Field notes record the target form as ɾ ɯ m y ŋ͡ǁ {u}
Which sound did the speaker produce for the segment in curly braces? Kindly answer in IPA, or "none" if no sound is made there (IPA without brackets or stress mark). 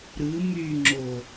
o